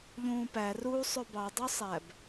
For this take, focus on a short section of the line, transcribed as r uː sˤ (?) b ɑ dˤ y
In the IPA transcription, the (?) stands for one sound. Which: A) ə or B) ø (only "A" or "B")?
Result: B